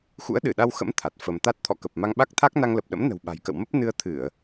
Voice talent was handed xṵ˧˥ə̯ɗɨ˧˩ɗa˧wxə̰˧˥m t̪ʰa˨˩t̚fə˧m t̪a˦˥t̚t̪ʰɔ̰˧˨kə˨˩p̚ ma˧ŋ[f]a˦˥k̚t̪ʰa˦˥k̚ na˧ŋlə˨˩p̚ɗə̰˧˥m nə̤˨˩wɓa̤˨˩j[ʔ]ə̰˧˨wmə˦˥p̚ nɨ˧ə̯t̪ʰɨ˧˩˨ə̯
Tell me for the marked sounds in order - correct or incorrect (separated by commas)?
incorrect, incorrect